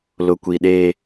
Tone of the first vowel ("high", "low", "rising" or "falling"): low